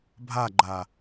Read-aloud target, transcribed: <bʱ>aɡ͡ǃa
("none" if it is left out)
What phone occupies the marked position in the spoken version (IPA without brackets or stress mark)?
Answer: bʱ